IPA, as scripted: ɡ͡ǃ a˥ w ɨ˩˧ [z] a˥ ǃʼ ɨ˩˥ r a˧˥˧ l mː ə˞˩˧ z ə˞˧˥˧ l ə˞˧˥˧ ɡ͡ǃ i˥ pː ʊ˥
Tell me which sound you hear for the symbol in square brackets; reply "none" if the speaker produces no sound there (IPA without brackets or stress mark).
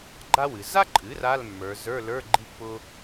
z